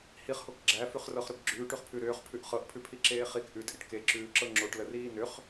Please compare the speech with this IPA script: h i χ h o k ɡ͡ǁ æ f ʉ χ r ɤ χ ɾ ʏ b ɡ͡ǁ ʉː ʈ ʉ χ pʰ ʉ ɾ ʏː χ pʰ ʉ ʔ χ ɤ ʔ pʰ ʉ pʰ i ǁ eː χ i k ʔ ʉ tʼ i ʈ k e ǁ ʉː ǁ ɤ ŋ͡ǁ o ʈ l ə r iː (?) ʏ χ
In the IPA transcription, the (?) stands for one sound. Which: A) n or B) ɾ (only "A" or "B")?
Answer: A